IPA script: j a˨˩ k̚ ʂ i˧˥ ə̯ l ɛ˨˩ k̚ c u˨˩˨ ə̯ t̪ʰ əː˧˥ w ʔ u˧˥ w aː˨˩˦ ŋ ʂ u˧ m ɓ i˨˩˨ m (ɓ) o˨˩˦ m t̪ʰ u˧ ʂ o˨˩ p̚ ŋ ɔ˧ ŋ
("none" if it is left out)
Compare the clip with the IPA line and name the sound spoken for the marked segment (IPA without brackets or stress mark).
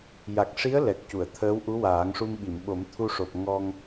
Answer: ɓ